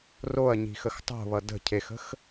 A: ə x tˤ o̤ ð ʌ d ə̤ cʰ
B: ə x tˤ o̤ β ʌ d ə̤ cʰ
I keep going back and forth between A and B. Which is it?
B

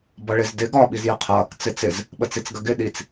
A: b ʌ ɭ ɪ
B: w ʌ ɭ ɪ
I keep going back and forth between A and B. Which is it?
A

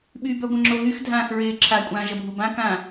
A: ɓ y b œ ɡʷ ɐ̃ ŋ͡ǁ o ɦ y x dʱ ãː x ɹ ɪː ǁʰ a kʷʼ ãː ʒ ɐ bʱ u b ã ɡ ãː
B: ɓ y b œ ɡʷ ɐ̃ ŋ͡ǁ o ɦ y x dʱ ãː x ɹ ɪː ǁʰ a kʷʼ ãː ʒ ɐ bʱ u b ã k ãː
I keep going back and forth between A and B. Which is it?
B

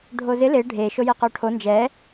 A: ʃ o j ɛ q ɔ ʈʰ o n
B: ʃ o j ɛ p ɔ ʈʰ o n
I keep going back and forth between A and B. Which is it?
A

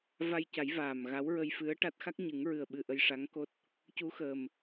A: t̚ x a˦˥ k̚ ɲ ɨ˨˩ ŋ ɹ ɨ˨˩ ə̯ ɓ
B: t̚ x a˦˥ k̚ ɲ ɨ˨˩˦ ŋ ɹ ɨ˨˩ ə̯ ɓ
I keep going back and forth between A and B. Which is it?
B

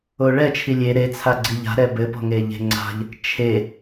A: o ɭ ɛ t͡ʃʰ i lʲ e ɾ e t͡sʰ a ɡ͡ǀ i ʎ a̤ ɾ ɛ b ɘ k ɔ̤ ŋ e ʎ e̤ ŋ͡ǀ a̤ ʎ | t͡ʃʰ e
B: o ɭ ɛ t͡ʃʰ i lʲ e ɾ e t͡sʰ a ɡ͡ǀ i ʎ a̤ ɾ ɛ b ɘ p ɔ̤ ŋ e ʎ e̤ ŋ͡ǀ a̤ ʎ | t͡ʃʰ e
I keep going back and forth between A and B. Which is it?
B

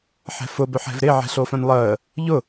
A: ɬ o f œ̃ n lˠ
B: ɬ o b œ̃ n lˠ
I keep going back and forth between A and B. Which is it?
A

